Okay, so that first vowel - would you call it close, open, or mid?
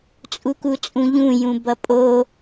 close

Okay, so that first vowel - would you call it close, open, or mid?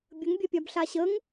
mid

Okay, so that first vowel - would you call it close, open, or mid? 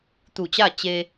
close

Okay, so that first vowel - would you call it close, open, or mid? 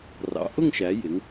open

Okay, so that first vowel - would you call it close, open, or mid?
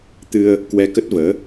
close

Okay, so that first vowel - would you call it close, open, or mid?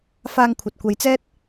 open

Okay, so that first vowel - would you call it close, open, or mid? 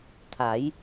open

